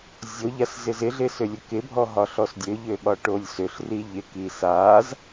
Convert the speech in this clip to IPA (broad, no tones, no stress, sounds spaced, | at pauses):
zʲ o ʎ a s z ɪ z ɪ ɮ ɪ s ø lʲ ɘ k ɪ bʱ ɔ ɦ ɒ ɬ ɔ s dʲ ø ʎ ø ɓ ɒ ʈ o lʲ s ø ɬ r i ʎ ɪ k i s a z